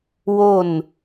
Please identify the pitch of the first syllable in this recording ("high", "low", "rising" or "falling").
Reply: falling